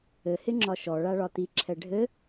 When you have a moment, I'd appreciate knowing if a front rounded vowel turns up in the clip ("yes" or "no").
no